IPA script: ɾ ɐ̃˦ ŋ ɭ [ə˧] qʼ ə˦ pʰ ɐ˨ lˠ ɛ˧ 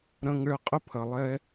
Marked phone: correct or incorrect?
correct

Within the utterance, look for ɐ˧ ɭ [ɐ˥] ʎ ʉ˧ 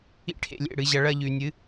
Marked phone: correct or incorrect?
correct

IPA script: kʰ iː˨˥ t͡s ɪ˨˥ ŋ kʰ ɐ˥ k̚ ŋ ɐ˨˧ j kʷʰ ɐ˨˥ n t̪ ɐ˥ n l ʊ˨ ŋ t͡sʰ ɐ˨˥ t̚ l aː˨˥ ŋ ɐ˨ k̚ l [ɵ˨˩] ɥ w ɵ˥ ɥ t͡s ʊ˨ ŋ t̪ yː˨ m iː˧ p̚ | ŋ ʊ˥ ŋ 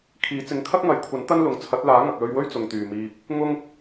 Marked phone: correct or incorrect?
incorrect: ɵ˧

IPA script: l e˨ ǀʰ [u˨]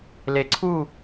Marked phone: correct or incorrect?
incorrect: u˦˨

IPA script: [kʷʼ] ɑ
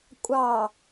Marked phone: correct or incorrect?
correct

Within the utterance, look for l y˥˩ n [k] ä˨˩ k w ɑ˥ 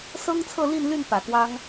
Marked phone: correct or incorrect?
incorrect: p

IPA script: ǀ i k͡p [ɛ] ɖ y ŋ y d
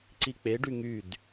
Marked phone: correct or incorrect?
incorrect: e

